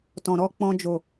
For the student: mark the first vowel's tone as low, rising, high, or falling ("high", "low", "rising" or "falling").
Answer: low